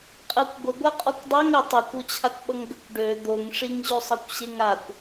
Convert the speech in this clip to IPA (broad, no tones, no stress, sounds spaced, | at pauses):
qʼ ɜ kʷ ɡʷ ə ɡʷ a qʼ ɔ kʷ dˤ a ŋ ə tˤ o kʷ o t͡ɕʰ a kʷ ɓ ʌ ŋ ɡ ə kʷ ɖ ø d̪ o ŋ ʂ i ŋ ʑ ø sˤ ɤ kʷ ɕ e ŋ a kʷ